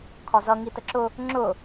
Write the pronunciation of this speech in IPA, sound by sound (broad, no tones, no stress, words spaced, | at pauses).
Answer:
kʰɒzʌ ŋitəǁʊ | ŋ͡ǁʊ